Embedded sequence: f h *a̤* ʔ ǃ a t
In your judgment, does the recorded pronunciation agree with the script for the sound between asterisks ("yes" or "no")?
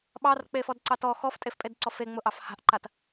yes